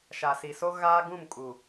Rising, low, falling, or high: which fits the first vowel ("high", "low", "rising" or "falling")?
low